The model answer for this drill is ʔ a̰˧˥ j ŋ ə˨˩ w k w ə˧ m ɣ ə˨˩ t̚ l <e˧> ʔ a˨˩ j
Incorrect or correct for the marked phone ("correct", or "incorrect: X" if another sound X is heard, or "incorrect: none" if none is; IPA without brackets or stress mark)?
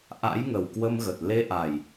correct